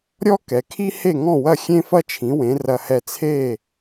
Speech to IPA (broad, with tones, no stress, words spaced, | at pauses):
ɾʲɔ˥kɛ˩kʰi˥ he˥˩ŋɔ̃˥˩wɐ˥˩ xʲẽ˥fɐ˥t͡ʃʰĩ˩˥wẽ˩˥ rɐ˧hɛ˥˩ t͡sʰe˥˩